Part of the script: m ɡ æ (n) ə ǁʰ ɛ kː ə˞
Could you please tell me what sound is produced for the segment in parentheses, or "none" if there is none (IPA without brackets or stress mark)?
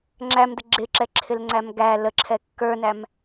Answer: l